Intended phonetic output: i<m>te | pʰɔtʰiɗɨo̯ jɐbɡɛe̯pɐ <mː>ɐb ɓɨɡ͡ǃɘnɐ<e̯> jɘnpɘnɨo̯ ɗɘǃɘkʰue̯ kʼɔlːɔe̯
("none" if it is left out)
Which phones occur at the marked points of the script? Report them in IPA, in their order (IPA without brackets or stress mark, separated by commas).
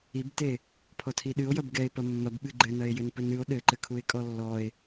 b, mː, e̯